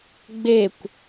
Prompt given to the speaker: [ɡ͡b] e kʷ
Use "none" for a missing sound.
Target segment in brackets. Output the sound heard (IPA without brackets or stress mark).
ɡ͡b